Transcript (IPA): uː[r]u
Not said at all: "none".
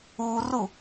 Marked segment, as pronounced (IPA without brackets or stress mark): r